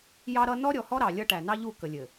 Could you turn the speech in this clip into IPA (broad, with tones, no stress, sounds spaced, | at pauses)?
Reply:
j ɑ˦ ɾ ʌ˦ n ɔ˦ ɾʲ ɔ˨ h ɔ˦ ɾ ɑ˨ lʲ ʌ˦ ʈ æ˨ n ɑ˦ ʎ u˦˨ k ə˨ lʲ ɘ˨